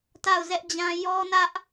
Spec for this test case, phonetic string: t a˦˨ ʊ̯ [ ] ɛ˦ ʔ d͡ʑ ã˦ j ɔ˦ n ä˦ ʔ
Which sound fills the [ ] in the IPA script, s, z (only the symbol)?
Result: z